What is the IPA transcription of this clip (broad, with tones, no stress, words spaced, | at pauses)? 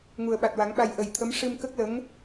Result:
ŋu˨˩ə̯ɓa˨˩t̚wa˨˩˦ŋɓa˧j ʔə˨˩jt̪ʰə˧˥m ʂɨ˧mkə˦˥k̚lə˧˥ŋ